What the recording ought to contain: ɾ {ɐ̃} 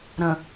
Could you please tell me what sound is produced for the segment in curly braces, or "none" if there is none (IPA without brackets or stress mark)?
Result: ə̃